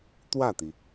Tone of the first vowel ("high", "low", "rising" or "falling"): falling